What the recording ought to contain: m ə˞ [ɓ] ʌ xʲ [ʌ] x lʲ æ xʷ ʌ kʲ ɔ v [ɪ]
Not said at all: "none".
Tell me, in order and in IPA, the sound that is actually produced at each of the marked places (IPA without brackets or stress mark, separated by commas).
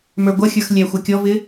ɡʷ, ə˞, ɪ